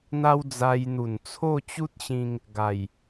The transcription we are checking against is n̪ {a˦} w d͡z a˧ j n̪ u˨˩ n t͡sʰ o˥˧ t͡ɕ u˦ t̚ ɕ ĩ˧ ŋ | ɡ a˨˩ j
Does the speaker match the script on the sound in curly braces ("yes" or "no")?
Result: yes